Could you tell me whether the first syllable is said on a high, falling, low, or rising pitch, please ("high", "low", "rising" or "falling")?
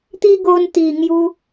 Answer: high